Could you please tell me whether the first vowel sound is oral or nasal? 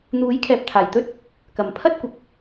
oral